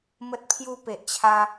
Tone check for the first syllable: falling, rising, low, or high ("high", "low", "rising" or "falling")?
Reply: high